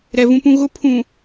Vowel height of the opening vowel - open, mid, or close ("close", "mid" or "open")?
mid